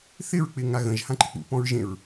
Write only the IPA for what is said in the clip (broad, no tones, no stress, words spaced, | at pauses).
θɪɹk͡pɪ ŋaɣə̃ʒ hãǃɪk͡pṵ pɔ̃ɹʒẽɹ